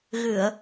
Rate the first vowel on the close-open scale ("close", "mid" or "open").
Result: close